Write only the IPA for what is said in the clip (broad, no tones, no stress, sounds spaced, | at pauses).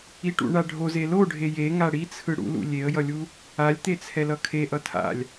i ʈ ṵ ɳ a ɖʱ o z e l o ɖʱ e j e ŋ a ɽ i t͡sʰ ɯ ɽ ṵ l ṵ lʲ e ə̯ j ʌ lʲ u | a lʲ t̪ e t͡sʰ ɛ l ʌ kʰ e ʔ ʌ tʰ a̰ lʲ